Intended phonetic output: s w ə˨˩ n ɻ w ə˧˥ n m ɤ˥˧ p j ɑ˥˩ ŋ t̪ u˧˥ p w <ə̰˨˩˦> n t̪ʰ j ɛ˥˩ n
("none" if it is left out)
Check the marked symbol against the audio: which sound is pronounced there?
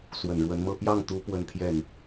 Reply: ə˥˧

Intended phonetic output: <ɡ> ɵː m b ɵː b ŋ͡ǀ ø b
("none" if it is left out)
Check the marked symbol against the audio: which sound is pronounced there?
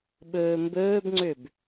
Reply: ɓ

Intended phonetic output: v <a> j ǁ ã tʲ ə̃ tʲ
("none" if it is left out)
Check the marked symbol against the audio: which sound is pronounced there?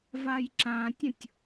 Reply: a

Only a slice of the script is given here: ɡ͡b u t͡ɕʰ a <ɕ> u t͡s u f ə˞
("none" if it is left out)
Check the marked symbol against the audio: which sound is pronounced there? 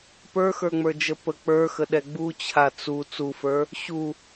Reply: t͡s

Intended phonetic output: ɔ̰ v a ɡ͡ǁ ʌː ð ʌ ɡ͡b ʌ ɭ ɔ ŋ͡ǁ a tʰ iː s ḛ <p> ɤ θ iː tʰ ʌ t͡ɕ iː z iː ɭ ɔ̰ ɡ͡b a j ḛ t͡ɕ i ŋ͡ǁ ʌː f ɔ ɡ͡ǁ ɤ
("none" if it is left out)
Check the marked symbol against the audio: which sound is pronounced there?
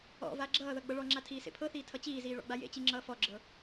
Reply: pʰ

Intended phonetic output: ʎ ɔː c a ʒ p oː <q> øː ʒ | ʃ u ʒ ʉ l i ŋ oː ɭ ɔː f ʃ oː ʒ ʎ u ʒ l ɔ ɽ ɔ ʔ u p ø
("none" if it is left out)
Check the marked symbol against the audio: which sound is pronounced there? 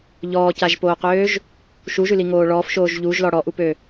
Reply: q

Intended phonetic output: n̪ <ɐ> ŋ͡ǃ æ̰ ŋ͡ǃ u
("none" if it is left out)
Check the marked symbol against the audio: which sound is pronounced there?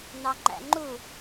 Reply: ɑ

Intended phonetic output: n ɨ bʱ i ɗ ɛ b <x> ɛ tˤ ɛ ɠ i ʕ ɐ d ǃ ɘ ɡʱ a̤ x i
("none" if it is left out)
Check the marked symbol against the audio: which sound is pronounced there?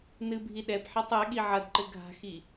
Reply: ħ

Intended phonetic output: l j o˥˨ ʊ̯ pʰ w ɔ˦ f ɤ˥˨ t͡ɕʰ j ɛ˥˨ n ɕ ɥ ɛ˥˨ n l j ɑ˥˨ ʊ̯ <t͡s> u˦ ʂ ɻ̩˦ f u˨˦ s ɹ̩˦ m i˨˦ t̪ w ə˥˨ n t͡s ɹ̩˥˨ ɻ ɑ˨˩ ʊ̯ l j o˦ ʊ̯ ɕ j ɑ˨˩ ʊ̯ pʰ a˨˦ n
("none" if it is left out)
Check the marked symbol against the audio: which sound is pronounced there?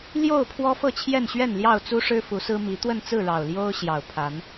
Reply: t͡s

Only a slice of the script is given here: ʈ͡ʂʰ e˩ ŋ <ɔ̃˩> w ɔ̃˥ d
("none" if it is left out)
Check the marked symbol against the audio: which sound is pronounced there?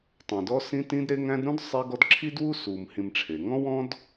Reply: ɔ̃˥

